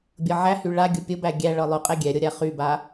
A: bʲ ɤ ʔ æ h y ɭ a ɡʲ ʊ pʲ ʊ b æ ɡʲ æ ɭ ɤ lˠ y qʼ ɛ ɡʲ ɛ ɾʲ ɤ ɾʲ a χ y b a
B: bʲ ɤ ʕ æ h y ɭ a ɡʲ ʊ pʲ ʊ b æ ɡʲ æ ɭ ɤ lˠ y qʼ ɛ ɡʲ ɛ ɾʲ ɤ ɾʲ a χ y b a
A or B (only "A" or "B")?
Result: B